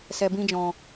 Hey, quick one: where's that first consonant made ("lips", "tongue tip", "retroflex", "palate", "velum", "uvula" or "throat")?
tongue tip